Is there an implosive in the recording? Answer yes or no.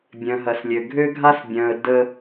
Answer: no